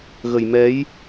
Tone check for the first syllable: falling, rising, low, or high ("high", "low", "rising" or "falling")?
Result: low